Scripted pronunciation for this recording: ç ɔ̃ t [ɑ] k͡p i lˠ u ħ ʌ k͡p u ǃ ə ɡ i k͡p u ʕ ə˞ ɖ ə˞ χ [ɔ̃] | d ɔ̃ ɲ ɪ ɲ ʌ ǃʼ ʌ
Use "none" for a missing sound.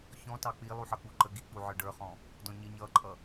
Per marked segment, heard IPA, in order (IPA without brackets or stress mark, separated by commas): ɑ, ɔ̃